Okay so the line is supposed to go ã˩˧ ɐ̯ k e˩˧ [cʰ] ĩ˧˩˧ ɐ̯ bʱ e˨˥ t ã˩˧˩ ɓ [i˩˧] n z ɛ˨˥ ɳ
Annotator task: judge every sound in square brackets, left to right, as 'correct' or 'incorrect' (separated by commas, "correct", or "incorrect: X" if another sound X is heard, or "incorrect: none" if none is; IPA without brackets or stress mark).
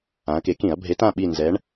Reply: incorrect: k, incorrect: i˦˨